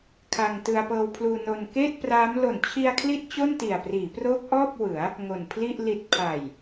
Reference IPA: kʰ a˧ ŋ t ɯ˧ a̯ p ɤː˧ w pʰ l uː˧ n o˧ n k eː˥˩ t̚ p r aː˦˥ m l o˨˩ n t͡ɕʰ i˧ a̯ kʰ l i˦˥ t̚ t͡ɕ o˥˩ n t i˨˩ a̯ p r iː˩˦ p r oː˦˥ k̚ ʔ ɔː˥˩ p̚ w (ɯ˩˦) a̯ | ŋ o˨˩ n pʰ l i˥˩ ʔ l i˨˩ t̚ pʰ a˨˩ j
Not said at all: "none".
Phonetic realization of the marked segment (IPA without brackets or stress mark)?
ɯ˩˦